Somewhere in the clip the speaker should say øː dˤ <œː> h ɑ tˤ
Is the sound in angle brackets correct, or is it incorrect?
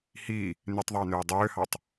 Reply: incorrect: øː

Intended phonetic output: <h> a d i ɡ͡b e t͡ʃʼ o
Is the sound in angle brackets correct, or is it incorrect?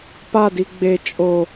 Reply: incorrect: p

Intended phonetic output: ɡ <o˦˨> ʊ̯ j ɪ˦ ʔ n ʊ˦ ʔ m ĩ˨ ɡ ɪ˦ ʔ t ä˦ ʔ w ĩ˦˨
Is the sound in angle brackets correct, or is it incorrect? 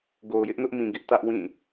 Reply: incorrect: o˨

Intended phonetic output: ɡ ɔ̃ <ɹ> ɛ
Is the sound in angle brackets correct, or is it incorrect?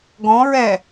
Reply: correct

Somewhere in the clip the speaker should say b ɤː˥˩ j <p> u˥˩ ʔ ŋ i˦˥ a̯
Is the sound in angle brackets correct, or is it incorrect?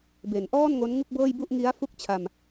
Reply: incorrect: b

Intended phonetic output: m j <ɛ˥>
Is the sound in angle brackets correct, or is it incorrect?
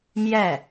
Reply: incorrect: ɛ˥˩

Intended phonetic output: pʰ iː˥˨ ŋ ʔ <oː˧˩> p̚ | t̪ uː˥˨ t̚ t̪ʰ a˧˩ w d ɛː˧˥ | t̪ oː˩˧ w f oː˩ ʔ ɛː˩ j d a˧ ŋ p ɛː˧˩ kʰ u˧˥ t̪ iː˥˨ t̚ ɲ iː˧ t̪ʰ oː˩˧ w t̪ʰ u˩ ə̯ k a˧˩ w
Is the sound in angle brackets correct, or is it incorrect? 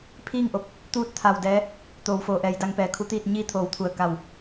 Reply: incorrect: o˧˩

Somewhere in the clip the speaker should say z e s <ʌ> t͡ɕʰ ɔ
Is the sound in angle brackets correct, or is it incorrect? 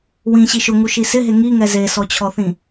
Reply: incorrect: ɔ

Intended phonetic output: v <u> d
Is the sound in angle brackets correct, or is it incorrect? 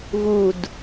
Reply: correct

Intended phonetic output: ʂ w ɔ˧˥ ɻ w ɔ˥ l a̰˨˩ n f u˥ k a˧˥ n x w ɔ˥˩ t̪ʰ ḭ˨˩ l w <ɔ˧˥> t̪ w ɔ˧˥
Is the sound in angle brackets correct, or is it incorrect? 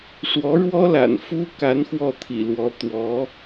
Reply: correct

